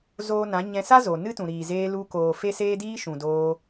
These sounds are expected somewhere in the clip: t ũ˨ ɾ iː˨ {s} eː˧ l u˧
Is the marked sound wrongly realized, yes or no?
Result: yes